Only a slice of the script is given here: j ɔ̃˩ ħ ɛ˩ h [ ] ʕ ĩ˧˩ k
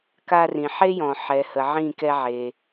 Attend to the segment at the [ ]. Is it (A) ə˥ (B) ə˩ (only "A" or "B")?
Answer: B